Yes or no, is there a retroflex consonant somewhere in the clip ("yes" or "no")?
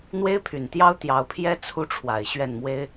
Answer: yes